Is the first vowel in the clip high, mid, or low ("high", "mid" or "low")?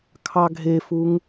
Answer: low